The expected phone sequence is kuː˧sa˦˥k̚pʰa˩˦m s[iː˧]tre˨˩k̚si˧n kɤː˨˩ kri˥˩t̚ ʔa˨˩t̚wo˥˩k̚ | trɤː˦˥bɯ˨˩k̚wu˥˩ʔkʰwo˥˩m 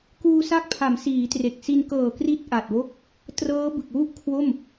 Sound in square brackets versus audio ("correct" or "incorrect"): incorrect